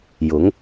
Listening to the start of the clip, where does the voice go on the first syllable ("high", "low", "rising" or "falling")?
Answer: rising